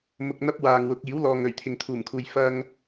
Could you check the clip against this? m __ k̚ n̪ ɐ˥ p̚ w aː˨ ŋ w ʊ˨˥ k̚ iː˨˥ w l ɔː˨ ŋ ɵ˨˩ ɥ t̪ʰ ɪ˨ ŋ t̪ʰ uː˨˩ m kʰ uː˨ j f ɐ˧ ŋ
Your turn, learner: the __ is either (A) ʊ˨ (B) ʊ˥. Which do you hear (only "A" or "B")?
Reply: A